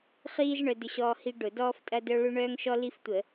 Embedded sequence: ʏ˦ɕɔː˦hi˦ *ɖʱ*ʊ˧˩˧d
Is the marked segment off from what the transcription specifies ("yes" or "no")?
yes